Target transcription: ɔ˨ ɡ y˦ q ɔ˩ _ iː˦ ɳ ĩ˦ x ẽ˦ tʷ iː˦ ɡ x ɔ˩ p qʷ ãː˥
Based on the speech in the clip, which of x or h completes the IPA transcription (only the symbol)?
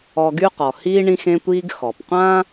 h